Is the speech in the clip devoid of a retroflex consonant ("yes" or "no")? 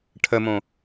no